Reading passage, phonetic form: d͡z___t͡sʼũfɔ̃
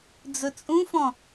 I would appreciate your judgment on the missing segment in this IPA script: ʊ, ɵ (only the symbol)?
ɵ